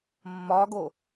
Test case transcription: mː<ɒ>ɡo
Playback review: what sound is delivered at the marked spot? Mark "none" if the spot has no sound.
ɒ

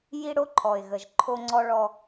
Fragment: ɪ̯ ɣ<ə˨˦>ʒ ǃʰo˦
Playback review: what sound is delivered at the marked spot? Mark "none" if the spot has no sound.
ə˨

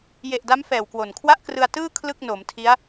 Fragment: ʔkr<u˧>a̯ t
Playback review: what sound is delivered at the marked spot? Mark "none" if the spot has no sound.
ɯ˧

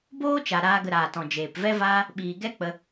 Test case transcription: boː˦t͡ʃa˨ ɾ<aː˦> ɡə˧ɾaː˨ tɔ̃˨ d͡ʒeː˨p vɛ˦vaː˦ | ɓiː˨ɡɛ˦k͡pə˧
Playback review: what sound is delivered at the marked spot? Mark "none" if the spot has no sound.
aː˧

